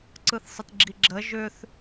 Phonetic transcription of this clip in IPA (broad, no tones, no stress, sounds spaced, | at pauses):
ǀ ɯ θ sˤ ə t ɡ͡ǁ i ɡ͡ǁ ə ʒ ʏ θ